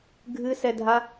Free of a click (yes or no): yes